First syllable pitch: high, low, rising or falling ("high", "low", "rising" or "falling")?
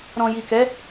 low